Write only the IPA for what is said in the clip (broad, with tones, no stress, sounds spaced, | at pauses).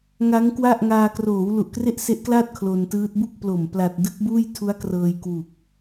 ŋ a˦˥ ŋ k w a˥˩ ʔ ŋ aː˧ k r oː˩˦ w l u˨˩ ʔ k r e˥˩ ʔ s e˦˥ ʔ k l aː˥˩ t̚ kʰ l o˧ n t ɯː˦˥ t̚ b u˥˩ k̚ p l o˨˩ m p l a˨˩ t̚ d ɯ˦˥ k̚ b uː˥˩ j tʰ u˦˥ a̯ k r ɤː˧ j k w u˨˩ k̚